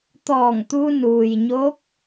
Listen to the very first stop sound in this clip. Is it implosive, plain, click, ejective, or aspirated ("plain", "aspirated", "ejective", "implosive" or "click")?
plain